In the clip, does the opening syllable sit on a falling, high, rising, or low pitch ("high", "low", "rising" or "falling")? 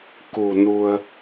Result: low